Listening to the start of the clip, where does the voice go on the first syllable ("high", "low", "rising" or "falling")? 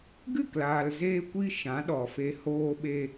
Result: falling